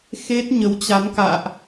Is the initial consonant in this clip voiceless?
yes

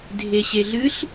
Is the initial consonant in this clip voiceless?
no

